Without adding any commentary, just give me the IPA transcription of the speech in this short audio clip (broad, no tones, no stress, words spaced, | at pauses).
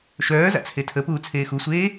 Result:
ʃœːza̰ t͡sʰetʰəpuː t͡sʰeːxusʷeː